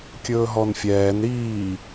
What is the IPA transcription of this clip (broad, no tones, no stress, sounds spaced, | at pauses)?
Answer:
kʲ ɵː ɦ ɔ n fʲ ɛː n ɾ iː